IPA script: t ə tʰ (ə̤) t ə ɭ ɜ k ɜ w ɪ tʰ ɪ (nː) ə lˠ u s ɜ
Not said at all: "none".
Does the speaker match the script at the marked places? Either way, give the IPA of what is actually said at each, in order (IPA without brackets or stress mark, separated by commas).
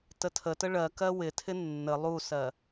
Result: ə, nː